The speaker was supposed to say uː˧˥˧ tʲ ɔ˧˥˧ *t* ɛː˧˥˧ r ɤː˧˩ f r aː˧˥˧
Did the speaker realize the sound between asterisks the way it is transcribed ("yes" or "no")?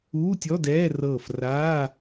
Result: no